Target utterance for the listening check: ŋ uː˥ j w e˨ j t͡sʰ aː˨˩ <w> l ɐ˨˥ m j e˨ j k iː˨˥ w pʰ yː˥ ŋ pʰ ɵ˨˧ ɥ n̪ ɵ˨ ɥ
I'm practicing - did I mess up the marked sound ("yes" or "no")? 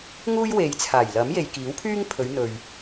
yes